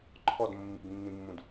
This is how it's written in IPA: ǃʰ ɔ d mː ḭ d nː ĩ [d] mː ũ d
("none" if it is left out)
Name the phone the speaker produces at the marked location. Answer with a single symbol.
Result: none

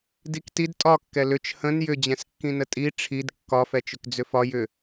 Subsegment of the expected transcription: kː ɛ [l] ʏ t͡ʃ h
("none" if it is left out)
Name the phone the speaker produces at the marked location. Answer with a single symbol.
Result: l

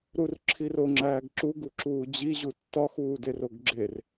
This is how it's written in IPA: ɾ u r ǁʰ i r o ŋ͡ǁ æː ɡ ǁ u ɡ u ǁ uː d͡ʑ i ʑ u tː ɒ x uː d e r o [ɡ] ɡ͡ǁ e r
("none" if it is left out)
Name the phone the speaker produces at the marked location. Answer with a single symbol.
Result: ɡ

